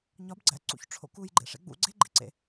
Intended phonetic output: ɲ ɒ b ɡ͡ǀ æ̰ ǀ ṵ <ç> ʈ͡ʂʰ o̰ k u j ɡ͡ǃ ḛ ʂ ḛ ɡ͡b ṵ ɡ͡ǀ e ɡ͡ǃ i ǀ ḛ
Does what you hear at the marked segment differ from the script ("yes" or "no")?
no